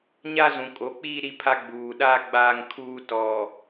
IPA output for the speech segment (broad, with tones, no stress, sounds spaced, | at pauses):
ɲ a˦ z ũ˨ kʼ o˨˦ k͡p iː˦ ɾ i˦ pʰ a˦ ɡ͡b uː˨ ɗ aː˦ ɡ͡b aː˦ ŋ kʰ uː˦ t ɔ˨